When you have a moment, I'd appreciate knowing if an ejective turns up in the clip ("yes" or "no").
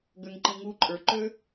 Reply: yes